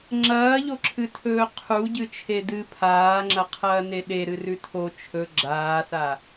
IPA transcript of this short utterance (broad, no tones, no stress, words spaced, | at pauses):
ŋ͡ǁɐːʎoǁʰɨtʰɵː qʰuɟɨt͡ʃʰe dɨ pʰaːŋ͡ǁɐqʰɐːne ɗeɾɨrʉ tʰo t͡ʃʰɵ ɡ͡ǁaːsa